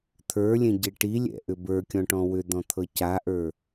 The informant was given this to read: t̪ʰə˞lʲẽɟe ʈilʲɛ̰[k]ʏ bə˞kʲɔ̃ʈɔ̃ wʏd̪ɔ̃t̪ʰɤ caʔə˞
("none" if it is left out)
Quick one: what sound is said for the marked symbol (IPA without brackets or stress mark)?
ʔ